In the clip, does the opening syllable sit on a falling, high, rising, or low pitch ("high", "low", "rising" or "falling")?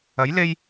rising